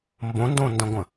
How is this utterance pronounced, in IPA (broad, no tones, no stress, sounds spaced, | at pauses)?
m b õ n d õ n d ə̃ ɡʷ ə̃